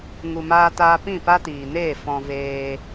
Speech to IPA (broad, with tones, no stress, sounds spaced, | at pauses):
ŋ u˨ m aː˧ t aː˧ p ĩ˦˨ p a˦ t iː˨ n eː˦˨ f ɔ̃˧ v eː˧